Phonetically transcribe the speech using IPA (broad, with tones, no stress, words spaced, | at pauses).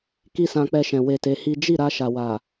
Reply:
ki˦sã˧k͡pɛ˧ʃɛ̃˨ we˧te˧hi˦ d͡ʒi˦˨ ɾa˧ʃa˨wa˨